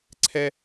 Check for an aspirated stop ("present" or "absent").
present